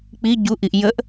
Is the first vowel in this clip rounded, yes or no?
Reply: no